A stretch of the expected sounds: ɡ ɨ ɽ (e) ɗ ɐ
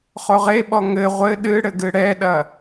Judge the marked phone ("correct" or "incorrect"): incorrect